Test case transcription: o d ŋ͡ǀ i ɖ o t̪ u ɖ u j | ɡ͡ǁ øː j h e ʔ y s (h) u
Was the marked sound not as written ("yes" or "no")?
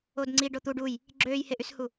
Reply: no